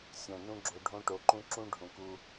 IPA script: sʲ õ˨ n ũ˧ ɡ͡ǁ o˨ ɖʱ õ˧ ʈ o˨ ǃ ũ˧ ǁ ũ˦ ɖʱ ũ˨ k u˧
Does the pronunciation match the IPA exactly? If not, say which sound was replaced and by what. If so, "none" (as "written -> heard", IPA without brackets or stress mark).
none